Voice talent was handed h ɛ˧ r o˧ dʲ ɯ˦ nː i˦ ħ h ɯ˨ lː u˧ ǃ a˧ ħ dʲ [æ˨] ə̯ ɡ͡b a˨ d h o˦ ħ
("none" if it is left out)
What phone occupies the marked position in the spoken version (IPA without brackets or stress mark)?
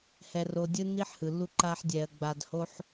ɛ˨